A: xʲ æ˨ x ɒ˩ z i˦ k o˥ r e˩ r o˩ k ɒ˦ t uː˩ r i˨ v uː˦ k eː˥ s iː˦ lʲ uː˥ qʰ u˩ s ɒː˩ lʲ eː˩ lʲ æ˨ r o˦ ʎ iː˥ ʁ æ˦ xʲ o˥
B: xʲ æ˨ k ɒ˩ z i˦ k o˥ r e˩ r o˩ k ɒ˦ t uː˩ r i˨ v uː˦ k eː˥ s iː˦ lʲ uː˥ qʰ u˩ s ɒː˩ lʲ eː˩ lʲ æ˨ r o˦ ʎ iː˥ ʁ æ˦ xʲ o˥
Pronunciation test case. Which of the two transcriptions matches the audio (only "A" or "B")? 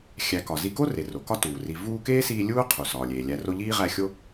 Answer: B